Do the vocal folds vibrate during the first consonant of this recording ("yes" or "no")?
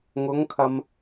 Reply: yes